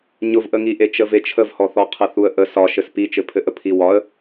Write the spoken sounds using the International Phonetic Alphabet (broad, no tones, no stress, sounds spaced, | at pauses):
ɲ ʊ v ʔ ə ŋ i ʔ e t͡ʃ ə v e t͡ʃʰ ə v h ɔ θ ɔ qʰ ə θ u ə̯ ʔ ə s ɒ ʃ ɘ s p i t͡ʃ ɘ pʰ ɘ ʔ ə pʰ i w ɒ ə̯